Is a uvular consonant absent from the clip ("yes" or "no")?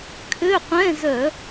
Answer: no